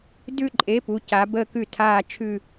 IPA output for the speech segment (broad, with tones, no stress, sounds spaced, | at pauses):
d ʉ˥˧ ǃʼ e˨˥ p u˩˧ c a˩˧ b ə˧˩ k ʉ˧˩ tʰ aː˧˩ t͡ʃʰ ʉ˧˩